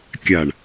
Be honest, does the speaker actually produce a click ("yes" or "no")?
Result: no